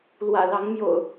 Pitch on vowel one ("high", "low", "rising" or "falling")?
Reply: low